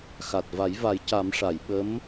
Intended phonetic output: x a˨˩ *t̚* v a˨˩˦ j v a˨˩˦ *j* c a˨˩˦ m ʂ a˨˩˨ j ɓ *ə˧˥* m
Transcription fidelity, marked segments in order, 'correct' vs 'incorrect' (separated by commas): correct, correct, correct